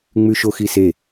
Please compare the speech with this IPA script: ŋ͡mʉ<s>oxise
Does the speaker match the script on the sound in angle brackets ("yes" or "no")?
no